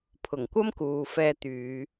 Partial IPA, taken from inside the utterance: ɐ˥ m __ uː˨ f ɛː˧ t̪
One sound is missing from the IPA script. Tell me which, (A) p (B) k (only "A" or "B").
B